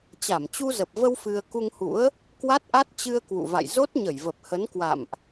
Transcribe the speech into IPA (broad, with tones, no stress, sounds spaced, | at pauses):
t͡ɕ a˧˩ m t͡ɕ u˧ z ə˨˩ p̚ v ə˧ w f ɨ˧ ə̯ k u˧ ŋ h ṵ˧˥ ə̯ | k w a˦˥ t̚ ʔ a˦˥ t̚ t͡ɕ ɨ˧ ə̯ k w ṵ˧˨ v a̰˧˨ j z o˦˥ t̚ ɲ ə˧˩ j v ə˨˩ p̚ h ə˨˦ n k w a̰˧˨ m ʔ